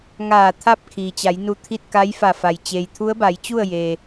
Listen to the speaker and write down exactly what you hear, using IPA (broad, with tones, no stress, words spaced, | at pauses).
ŋaː˧˩ t̪ʰa˥˨p̚ kʰiː˩t͡ɕa˩˧jnu˧˩ t̪ʰi˥˨t̚ka˧˥jfa˧˩ fa˩j t͡ɕeː˩jt̪ʰu˧˥ə̯ba˩˧jt͡ɕu˥˨ə̯ je˩